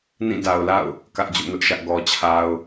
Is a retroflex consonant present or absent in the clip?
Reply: absent